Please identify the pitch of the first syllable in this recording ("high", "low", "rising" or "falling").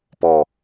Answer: low